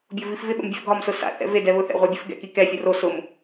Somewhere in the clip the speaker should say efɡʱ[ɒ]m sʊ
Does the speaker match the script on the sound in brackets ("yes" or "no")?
yes